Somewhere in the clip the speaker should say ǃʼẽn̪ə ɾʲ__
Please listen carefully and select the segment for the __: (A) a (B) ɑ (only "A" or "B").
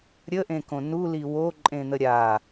A